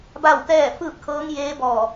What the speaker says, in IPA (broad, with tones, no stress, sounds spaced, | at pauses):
b a˥˨ w t̪ ɛː˥˨ f ɯː˥˨ p̚ kʰ ɤː˧˥ ŋ j eː˧˥ b ɔː˧˩